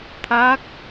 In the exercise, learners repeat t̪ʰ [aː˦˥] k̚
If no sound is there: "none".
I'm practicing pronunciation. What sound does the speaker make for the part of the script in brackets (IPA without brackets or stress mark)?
aː˦˥